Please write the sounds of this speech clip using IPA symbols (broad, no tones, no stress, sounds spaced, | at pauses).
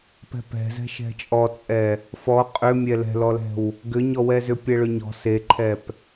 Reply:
p ɛ̤ p ɛ̤ z ɛ̤ ʃ ɛ̤ t͡ʃʼ ɔ t͡sʼ ɛ | f ɔ qʼ ʏ mʲ ɛ l ɛ̤ l ɔ l ɛ̤ w | ɡ ʏ ɲ ɔ w ɛ z ʏ pʲ ɛ ɭ ʏ ɲ ɔ̤ s e ǃʰ ɛ p